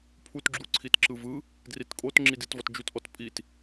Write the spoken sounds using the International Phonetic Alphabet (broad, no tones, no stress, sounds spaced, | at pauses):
pʰ u t ɡ͡ǁ u ǀʰ i t ǁ ɯ v ɯ | d r i t kʼ o t ŋ͡ǁ i d i t v ɔ t d͡ʒ u t ʔ ɔ t pʼ i t